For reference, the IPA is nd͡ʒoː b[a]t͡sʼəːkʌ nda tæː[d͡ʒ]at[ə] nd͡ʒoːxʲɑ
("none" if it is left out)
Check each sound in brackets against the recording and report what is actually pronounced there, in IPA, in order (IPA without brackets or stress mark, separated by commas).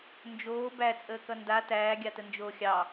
æ, ɡʲ, ə